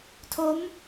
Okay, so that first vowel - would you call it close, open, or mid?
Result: mid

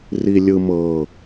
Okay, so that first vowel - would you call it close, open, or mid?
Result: close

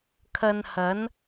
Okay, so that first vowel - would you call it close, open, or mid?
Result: open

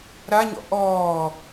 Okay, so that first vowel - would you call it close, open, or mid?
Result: open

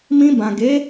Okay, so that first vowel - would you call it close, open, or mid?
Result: close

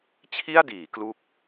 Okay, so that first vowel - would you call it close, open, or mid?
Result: close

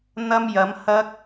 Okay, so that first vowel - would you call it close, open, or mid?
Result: open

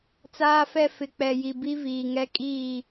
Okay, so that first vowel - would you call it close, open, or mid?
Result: open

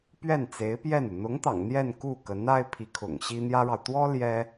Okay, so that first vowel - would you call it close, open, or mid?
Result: mid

